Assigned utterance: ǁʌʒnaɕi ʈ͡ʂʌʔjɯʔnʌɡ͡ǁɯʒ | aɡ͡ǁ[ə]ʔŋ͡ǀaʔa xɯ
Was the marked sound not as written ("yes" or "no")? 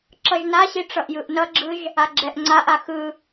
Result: yes